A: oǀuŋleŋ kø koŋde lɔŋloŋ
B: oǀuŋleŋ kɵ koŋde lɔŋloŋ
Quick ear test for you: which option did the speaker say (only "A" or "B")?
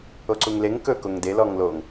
B